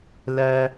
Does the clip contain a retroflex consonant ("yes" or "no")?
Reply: no